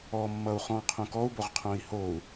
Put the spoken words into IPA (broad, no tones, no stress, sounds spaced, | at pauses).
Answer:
ɔ mː ʌ u̯ χ ɔ̃ qʰ õ k ɔ u̯ b o ʁ qʰ õ i̯ h o u̯